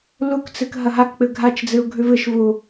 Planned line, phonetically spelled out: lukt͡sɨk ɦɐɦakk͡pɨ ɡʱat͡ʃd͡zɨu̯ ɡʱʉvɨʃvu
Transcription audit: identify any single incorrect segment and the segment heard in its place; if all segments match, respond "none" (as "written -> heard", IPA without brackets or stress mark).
none